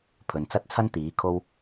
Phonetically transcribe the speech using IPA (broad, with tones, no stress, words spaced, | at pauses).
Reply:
pʰɵ˨n t͡sɐ˥t̚t͡sʰɐ˥n t̪iː˨˥kʰo˥w